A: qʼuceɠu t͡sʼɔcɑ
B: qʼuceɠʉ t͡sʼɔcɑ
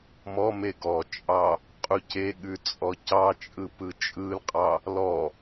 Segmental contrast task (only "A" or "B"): B